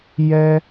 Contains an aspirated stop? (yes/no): no